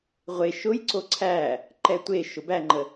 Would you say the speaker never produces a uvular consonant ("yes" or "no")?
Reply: no